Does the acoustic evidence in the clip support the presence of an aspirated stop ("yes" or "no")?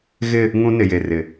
no